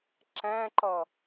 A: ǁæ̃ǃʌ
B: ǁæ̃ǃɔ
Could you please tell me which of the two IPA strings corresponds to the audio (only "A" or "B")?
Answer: A